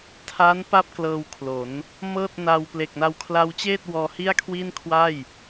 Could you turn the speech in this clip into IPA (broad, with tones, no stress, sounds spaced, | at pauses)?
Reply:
tʰ a˦˥ n p a˥˩ p̚ k l ɤː˧ w kʰ l o˩˦ n | m ɤː˥˩ t̚ n aː˧ w p l e˨˩ k̚ n a˧ w kʰ l a˧ w t͡ɕ eː˥˩ t̚ w ɔː˧ h i˥˩ a̯ kʰ w i˥˩ n kʰ w a˥˩ j